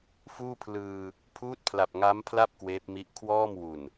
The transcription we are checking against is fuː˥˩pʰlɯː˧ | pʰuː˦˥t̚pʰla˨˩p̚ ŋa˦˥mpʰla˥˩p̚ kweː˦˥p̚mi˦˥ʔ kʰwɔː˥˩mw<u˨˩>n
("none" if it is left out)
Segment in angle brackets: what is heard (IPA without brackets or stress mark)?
u˨˩